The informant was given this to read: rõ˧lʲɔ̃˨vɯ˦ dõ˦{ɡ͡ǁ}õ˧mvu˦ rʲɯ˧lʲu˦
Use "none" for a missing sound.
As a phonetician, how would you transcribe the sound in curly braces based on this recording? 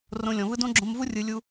ɡ͡ǁ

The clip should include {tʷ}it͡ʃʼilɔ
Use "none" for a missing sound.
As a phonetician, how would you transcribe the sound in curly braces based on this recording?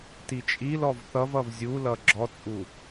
t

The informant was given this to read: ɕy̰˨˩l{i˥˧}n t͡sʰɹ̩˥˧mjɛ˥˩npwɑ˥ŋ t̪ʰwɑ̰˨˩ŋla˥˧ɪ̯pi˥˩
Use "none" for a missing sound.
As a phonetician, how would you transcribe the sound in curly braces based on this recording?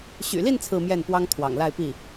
i˥˧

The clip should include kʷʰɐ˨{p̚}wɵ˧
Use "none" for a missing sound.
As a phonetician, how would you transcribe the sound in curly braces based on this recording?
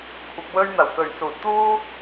p̚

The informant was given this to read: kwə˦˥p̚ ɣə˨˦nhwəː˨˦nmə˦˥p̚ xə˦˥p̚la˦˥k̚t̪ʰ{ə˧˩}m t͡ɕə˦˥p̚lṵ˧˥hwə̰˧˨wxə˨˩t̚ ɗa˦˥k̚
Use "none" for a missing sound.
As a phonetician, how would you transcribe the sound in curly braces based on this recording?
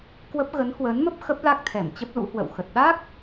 ɛ˧˩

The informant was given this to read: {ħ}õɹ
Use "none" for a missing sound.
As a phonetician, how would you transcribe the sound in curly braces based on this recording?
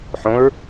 ħ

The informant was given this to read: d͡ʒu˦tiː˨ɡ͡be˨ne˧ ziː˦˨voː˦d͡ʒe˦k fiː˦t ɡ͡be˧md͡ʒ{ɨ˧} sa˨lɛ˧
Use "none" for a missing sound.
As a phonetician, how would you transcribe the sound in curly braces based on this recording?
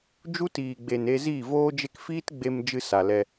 ɨ˧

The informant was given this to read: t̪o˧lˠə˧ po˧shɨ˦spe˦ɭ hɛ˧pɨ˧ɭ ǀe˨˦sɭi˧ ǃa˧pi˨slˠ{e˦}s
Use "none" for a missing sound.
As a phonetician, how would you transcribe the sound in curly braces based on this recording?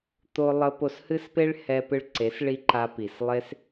e˦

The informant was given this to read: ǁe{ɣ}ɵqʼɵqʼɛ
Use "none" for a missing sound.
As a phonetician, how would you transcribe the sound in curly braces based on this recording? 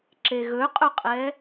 ɣ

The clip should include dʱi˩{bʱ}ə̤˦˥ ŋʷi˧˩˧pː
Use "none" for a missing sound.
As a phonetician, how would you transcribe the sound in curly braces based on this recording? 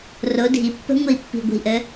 pː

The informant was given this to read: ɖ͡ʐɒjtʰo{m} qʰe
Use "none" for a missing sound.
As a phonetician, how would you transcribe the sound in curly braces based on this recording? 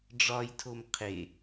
m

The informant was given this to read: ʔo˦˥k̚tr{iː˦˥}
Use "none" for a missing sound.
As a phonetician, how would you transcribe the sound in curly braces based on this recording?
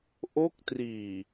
iː˨˩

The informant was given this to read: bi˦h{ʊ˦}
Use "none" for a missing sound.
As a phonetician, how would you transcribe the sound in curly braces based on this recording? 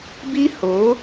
ʊ˨˦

